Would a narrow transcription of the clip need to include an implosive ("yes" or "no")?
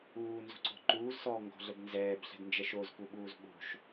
yes